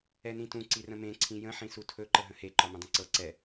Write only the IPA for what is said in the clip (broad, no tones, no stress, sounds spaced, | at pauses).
ɛ n ĩ t ũ ǀ i r ə̃ m ẽ ǀʰ ĩ j ə̃ ħ ĩ s u tʰ ɵ ǃ ə ɦ ə̃ h e ǃ ɒ m ə̃ dˤ ə̃ ǀ ɤ ǀ ɛ